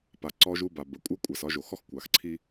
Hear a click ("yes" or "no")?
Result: yes